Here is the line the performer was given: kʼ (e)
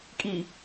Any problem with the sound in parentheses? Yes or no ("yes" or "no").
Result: yes